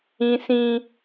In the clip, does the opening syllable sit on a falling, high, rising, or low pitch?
high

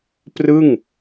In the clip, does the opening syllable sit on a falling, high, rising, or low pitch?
falling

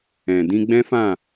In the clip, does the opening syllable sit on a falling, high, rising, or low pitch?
low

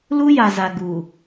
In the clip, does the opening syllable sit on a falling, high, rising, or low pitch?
high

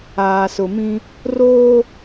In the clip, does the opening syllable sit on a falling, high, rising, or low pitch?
low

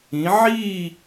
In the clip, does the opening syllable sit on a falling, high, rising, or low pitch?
rising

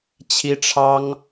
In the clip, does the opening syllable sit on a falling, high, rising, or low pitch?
high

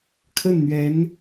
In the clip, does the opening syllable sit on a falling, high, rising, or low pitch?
falling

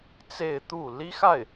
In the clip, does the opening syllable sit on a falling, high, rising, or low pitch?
falling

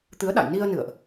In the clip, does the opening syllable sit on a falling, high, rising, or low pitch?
rising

